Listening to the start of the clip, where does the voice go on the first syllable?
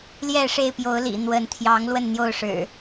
falling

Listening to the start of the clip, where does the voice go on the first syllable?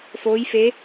rising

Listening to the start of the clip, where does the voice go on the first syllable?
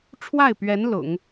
falling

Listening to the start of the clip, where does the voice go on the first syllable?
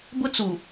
high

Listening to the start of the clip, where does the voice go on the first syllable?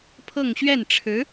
falling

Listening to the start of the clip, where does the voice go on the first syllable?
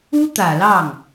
high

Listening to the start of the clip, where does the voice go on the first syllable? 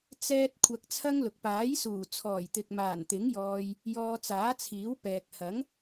high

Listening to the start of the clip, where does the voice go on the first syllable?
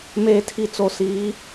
low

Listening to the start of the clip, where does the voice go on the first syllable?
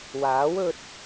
rising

